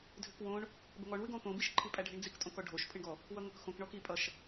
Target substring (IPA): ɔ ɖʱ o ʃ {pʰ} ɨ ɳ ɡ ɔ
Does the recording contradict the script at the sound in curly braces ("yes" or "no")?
no